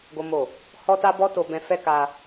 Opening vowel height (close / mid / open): mid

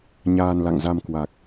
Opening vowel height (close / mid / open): open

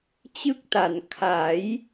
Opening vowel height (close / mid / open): close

